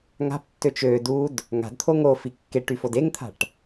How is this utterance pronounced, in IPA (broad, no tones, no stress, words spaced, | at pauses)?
ŋa̤ptːøt͡ʃ ø dud | ŋa̤dt̪ʰo ŋofi kːe ʈyfodeŋt̪ʰa̤ʈ